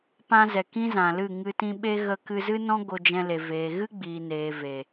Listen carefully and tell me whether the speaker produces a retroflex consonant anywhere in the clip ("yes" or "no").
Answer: no